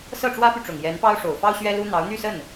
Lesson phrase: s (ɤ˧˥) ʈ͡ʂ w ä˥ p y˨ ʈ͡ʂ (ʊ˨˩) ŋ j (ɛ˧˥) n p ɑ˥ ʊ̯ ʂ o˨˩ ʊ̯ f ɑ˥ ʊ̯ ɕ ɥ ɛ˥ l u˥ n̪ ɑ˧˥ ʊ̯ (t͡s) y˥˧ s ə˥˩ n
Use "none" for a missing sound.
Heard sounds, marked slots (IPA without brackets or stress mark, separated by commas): ɤ˥˩, ʊ˨˩, ɛ˧˥, n̪